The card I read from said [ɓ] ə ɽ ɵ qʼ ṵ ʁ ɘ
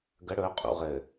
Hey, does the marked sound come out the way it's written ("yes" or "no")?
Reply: no